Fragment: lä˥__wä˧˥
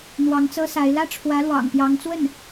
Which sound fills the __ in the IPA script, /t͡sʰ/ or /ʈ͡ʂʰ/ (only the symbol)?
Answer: ʈ͡ʂʰ